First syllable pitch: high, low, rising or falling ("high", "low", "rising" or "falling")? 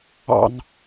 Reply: falling